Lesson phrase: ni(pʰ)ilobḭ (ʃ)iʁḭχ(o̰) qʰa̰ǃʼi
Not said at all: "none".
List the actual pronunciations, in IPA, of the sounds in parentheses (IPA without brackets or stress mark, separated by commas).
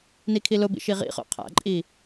kʰ, ʃ, o̰